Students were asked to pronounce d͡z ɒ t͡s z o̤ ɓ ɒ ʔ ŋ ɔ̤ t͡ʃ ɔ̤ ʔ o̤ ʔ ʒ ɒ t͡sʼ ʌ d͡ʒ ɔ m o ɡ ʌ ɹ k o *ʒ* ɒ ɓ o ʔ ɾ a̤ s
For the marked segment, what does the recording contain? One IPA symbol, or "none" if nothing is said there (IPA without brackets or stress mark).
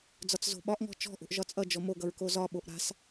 z